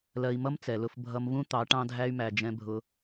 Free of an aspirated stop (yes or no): yes